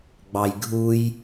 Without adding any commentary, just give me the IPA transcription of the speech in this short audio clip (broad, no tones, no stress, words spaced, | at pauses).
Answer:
ɡ͡bɑjɡʱuj